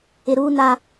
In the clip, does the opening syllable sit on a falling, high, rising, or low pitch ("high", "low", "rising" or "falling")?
low